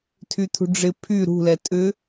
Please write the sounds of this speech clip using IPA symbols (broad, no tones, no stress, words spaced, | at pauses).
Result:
tʰyt̪ʰṳɖ͡ʐɪ pʰy ɾṳlɛ tʼʏ